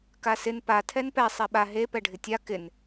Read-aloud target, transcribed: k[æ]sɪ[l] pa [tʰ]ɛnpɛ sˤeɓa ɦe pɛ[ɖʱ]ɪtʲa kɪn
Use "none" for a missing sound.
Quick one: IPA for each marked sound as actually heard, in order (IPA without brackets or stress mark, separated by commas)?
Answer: a, n, tʰ, ɖʱ